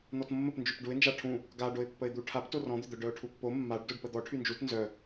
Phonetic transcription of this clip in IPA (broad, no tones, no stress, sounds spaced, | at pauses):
n̪ ɔ t mː ə p n d͡ʒ y p ɖ u ɪ̯ n d͡ʒ a ʈʰ ũ | ɡ a ɖ o ɪ̯ pː ə ɪ̯ d̪ u ʈʰ a p t o r ɔ̃ d̪ ʏ d̪ œ ɖ œ ʊ̯ ʈʰ u pː o mː a ɖ d o ɖ p ə d̪ ɔ ʈʰ y n d͡ʒ u t n z œ